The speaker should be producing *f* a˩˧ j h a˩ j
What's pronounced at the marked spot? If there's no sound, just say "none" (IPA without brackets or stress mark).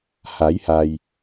h